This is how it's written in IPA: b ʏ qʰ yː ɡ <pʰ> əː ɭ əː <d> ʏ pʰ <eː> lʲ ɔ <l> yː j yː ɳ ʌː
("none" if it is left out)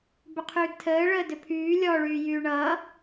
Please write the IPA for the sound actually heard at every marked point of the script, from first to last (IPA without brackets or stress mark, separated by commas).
tʰ, d, yː, ɭ